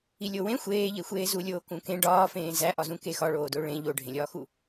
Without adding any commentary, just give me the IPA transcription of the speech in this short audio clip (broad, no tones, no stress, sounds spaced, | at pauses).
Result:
i lʲ o w ẽ xʷ eː ʎ e xʷ eː z u lʲ oː k ũ k ẽ ɖ ɒː f ẽː z æ ʔ ɒ z ũ k e x ɒ ɭ oː d o ɭ ẽ ʎ o ɖʱ ẽ lʲ ɒː x u